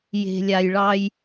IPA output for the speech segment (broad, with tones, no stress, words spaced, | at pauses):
je̤˩lʲa˩jɭɑ˨j